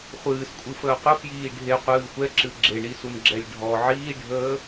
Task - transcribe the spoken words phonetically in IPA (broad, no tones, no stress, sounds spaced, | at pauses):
χʷ ɨː s kʷʼ ɨ f əː qʷ ə f j iː ɖʱ e qʷ ɨː xʷ ɛ ǁ ɨ ɡ͡ǁ e ɳ i s u n ɡ͡ǁ ɛ lʲ ɖʱ ɔ ʕ iː ɖʱ əː